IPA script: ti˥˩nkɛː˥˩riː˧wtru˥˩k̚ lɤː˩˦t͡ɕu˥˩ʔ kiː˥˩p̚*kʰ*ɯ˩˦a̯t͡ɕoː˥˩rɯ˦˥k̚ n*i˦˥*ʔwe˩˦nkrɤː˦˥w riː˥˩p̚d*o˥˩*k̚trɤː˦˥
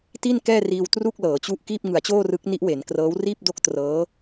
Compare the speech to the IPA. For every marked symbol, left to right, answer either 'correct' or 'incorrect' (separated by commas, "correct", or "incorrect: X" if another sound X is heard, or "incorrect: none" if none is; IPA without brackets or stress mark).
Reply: incorrect: ŋ, correct, correct